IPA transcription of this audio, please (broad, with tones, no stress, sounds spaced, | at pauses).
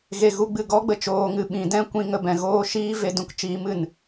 ɣ e˨ ɣ u˧ ɡ͡b ɨ˨ ɡ ɔ˦ ɡ͡b ə˨ t͡ʃ oː˧ ŋ ɨ˧ ɓ ĩ˨˦ d ɛ̃˦ kʷ ĩ˧ ŋ ə˨ b ɛ̃˨ ɣ oː˧ ʃ iː˦ v e˧ d ũ˧ k t͡ʃ iː˨˦ m ɨ˨ n